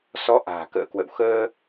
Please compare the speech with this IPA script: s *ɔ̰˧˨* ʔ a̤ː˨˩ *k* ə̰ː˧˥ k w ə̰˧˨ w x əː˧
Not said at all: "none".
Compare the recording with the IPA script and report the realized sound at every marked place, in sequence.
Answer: ɔ˨˦, k

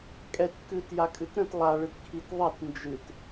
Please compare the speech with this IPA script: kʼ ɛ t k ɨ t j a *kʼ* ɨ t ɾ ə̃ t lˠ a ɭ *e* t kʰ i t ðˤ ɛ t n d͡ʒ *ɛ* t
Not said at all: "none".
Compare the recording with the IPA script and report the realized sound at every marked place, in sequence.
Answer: kʼ, ɨ, ɨ

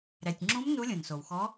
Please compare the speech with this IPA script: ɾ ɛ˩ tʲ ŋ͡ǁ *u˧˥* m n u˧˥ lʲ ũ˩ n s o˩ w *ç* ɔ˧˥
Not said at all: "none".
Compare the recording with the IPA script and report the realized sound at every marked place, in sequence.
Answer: ũ˧˥, x

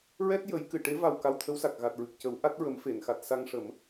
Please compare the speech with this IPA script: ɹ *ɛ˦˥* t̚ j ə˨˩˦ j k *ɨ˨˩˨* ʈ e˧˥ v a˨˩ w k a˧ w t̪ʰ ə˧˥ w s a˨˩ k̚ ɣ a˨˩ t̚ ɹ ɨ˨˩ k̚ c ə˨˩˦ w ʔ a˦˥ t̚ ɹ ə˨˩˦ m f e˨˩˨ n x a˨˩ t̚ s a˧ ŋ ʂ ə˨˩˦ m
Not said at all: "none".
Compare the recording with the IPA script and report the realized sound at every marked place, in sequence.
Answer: ɛ˦˥, ɨ˨˩˨

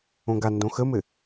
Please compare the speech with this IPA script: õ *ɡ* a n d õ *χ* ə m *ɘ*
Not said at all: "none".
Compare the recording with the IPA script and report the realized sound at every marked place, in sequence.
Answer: ɡ, x, ɘ

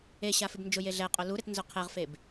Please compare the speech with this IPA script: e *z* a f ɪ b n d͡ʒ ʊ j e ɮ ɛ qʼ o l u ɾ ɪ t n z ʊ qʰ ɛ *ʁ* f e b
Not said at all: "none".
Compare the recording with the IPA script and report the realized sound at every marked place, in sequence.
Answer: ɕ, ʁ

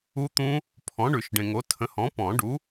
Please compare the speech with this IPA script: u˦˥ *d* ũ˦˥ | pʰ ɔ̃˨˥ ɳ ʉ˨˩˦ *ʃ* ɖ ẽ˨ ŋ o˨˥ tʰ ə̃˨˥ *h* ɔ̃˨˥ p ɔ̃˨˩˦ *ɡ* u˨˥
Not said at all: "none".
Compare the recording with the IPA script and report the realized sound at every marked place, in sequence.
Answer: t̪, ʃ, h, ɖ

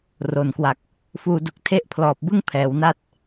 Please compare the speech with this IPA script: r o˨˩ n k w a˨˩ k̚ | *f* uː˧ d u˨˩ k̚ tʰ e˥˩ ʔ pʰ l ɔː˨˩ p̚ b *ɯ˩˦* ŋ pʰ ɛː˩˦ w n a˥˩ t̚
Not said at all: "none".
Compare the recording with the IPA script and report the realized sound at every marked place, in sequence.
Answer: f, ɯ˥˩

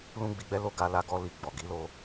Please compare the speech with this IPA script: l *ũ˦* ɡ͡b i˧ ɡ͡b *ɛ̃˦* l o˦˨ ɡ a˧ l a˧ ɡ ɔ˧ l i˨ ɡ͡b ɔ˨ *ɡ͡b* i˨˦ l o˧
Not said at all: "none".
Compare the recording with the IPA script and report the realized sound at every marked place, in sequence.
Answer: ũ˦, ɛ˦, ɡ

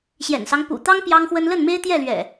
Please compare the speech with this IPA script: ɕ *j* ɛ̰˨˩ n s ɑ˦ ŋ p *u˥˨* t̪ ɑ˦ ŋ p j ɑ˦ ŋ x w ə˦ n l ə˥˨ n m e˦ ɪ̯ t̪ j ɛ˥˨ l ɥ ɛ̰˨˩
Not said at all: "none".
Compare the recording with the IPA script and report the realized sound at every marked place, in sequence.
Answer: j, ṵ˨˩

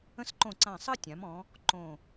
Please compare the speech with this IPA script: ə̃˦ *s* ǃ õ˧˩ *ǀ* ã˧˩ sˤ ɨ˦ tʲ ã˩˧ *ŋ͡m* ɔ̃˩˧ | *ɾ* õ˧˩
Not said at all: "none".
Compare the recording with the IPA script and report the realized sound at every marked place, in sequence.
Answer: s, ǀ, m, ǃ

